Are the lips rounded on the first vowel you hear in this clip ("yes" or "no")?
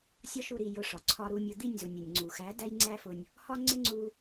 yes